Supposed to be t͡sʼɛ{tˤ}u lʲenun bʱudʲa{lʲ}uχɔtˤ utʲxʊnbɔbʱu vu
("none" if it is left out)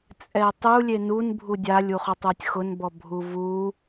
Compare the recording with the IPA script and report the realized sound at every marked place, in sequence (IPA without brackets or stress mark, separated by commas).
tˤ, lʲ